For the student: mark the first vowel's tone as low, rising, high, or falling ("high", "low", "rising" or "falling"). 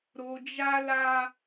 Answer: low